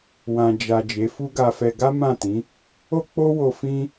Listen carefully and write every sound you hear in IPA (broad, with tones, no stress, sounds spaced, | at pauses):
w ã˨ d͡ʒ a˨ d͡ʒ e˨˦ f u˦ ɡ a˧ f ɛ˧ ɡ a˦ m ã˦˨ t ĩ˨˦ | o˦ k͡p o˦ w o˧ f ĩ˦